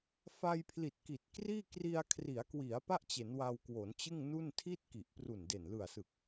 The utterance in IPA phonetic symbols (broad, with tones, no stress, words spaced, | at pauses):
fa˧jpʰli˨˩t̚ki˨˩t̚kriː˥˩ kri˧a̯ kʰri˩˦a̯kwi˩˦a̯ pa˥˩ʔt͡ɕe˩˦n wa˧wkwo˩˦nt͡ɕɯ˥˩ŋ nu˥˩n tʰi˥˩t̚ ki˨˩ʔpru˨˩nde˨˩n lɯ˨˩a̯sɯ˨˩k̚